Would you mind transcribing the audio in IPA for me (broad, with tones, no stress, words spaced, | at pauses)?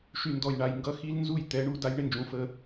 ʃy˨ndɔ˨jɳa˨j ŋɡʌ˦xi˦l nzu˦˨j t̪ɛ˨˦ɳu˦ da˦jɳɪ˦nd͡ʒũ˨˦ fə˦